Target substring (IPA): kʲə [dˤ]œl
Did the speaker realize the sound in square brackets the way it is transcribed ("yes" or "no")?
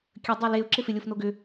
yes